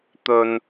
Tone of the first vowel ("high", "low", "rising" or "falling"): low